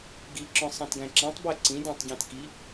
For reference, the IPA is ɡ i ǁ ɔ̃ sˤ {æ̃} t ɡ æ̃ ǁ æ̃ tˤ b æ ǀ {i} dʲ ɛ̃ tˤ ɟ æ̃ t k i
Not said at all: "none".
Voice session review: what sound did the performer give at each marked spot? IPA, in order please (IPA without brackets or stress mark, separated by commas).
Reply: æ̃, ĩ